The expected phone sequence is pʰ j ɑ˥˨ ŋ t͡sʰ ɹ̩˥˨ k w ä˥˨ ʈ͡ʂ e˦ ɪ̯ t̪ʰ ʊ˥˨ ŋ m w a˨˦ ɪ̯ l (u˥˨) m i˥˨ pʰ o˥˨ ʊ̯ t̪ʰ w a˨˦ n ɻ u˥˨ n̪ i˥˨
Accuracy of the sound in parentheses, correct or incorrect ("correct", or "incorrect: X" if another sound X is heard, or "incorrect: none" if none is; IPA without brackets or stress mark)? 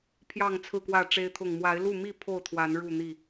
correct